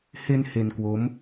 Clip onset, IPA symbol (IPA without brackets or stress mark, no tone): h